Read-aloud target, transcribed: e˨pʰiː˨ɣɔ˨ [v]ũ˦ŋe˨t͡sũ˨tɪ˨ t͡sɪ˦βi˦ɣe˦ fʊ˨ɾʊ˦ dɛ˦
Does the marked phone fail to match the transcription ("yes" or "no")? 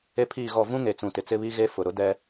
no